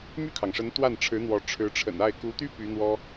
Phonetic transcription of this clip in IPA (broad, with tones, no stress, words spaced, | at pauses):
my˥˩kʰɑ˩ŋʂə˧˥n t̪wa˥˩nʈ͡ʂʰɻ̩˧˥n̪wɔ˧˥ ʈ͡ʂʰɻ̩˧˥ʈ͡ʂʰə̰˨˩na˥˩ɪ̯ ku˧˥t̪y˥ py˧˥n̪wɔ˥